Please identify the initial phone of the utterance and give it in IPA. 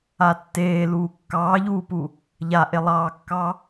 a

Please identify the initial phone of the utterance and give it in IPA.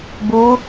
b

